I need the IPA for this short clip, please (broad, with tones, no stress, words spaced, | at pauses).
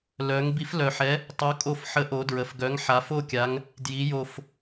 lœ˩˧ŋ bi˨˥flœ˨˩ħɛ˨˥ | tˤo˨˥kʼo˦˨f ħə˨˥ʔo˩˧ dɹə˩˧fɡœ˨˥ŋ ħa˩˧fo˦˨kʲa˩˧ŋ | dji˩˧jo˨˩f